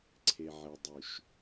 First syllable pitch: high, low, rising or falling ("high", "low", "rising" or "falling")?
low